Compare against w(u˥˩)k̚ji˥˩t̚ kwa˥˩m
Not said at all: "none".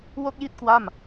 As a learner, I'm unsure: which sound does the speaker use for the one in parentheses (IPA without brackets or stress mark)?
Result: o˥˩